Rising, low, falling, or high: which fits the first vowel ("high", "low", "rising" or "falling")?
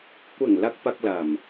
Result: low